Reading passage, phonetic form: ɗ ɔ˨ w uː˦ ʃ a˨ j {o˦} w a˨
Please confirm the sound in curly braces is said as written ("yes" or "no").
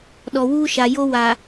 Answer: yes